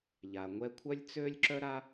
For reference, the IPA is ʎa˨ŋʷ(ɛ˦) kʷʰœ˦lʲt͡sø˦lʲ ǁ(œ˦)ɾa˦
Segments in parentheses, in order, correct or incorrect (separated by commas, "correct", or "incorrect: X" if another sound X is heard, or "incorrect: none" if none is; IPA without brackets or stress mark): correct, correct